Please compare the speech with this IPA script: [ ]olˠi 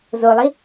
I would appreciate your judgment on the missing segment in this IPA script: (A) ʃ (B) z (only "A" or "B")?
B